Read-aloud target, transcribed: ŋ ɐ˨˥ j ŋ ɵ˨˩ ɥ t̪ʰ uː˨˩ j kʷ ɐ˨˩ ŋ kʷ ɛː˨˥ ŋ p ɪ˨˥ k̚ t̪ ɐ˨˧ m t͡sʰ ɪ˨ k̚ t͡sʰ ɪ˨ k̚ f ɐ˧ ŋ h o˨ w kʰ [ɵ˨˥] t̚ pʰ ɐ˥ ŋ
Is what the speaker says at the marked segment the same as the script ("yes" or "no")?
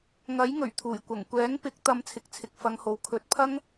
yes